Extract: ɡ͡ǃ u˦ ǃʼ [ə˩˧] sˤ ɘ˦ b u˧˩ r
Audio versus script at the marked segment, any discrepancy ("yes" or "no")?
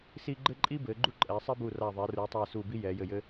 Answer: yes